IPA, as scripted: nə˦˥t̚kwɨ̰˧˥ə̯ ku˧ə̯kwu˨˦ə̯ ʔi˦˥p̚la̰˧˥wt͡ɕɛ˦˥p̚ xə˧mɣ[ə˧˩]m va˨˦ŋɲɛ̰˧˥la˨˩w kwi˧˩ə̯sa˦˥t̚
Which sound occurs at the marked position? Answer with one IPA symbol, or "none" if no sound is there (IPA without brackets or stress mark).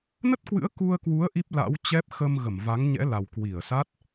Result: ə˧˩